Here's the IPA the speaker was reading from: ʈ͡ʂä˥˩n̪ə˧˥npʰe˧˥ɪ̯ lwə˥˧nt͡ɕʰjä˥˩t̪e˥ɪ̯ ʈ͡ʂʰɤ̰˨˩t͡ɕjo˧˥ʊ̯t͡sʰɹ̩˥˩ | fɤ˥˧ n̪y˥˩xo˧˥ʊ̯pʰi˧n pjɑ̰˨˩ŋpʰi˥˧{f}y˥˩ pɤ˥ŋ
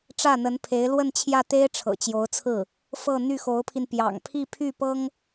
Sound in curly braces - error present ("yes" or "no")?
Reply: yes